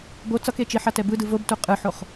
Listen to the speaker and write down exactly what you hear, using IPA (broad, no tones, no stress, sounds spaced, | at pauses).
b o t͡s ʌ k e t͡ʃ i ħ a t ɛ b ɯ d ɯ v o b t u qʼ ɯ ħ o χ